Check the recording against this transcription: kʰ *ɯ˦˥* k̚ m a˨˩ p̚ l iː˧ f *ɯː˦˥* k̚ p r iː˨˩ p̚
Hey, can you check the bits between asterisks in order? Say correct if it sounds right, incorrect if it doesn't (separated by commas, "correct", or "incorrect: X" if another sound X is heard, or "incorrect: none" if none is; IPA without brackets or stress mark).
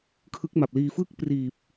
correct, incorrect: ɯ˦˥